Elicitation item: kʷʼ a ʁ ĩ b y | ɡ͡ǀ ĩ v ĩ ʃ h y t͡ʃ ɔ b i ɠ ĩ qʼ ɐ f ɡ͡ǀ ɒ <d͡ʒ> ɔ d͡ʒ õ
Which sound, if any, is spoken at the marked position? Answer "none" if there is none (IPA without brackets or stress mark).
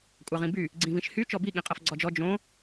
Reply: d͡ʒ